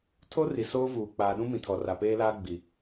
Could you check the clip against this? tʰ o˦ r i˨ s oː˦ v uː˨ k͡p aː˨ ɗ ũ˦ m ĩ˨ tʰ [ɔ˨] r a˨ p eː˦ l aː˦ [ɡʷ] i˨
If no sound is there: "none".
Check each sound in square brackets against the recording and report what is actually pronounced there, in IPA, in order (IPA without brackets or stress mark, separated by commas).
ɔ˨, ɡ͡b